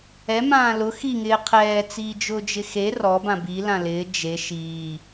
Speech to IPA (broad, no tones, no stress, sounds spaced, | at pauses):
ɛ m ãː l ʊ x i ŋ ɪː qʰ ɛː t͡s iː d͡ʒ ʊː d͡ʒ ɪ x e r ɔ b ã b i l ã l ɪː d͡ʒ e ʃ iː